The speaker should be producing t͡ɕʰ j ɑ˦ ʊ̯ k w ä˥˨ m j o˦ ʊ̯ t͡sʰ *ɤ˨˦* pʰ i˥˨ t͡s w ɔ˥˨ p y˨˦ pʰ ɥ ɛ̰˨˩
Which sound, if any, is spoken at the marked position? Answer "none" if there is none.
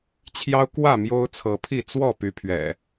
ɤ˨˦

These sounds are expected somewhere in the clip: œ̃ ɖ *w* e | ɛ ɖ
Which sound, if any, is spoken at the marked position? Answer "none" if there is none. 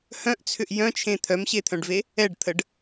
v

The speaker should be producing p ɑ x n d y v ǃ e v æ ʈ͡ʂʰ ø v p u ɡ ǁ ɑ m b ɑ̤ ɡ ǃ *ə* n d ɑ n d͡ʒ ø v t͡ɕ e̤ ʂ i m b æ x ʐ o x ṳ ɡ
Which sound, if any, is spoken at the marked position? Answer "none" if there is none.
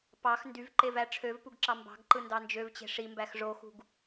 ɯ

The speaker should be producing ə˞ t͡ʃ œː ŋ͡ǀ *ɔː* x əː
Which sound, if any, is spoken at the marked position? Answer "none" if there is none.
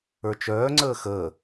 əː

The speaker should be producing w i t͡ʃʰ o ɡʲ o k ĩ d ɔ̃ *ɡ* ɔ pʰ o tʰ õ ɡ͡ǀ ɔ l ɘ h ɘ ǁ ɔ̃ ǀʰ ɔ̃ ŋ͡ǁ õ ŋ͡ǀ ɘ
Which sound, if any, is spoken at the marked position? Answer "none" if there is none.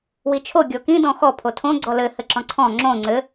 x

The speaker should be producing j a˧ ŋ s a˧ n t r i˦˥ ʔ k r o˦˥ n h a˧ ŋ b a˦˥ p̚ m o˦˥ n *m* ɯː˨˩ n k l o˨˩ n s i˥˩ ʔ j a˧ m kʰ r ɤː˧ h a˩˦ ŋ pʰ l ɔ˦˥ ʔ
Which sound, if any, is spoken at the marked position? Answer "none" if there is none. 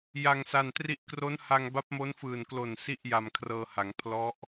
f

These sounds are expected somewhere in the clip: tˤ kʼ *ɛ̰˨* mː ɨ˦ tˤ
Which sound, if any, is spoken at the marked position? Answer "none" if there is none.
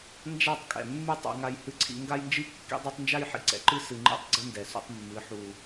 ɛ̰˨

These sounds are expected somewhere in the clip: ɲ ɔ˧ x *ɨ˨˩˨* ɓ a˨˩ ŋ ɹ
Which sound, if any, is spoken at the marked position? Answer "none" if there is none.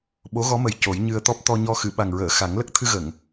ɨ˨˩˨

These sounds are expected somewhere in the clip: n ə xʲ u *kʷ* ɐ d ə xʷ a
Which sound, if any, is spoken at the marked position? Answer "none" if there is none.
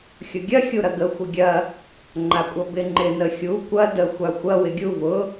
kʷ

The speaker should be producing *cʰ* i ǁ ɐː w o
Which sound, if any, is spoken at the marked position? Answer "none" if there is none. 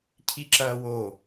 cʰ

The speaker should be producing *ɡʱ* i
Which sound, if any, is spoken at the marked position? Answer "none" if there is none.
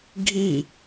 ɡʱ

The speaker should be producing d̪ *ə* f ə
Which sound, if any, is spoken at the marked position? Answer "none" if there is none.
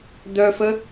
œ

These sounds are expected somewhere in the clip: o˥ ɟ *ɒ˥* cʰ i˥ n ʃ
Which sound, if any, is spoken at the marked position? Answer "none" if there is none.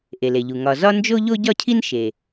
ɒ˥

